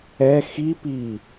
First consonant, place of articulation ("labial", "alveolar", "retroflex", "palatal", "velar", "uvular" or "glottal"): velar